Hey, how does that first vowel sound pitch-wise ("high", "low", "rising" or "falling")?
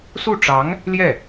falling